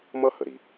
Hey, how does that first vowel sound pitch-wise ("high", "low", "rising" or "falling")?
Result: high